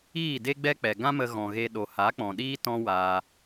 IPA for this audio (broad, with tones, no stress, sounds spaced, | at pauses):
iː˦˨ d e˦ ɡ͡b ɛ˦ k͡p ɛ˨ ɡ ã˦ m ə˧ ɣ ɔ̃˨ ɣ e˧ ɗ o˨ h a˨˦ k͡p ɔ̃˨ ɗ iː˦ t ɔ̃˦ w aː˧